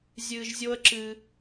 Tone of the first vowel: low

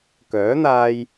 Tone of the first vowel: rising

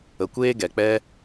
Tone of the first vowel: low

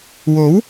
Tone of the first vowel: rising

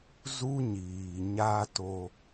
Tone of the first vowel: high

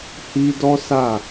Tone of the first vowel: high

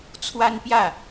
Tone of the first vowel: high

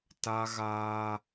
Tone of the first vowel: high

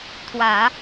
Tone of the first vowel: low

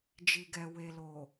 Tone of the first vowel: low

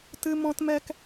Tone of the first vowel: high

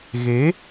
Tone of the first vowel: rising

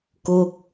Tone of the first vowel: falling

